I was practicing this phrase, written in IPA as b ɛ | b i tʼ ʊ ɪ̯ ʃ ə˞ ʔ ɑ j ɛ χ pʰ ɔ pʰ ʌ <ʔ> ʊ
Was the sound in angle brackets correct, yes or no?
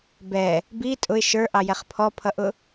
yes